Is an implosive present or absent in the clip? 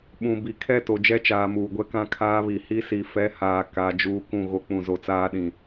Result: present